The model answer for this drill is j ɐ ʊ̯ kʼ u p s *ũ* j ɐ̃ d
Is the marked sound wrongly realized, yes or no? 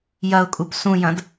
no